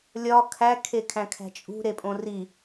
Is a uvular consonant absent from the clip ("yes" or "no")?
yes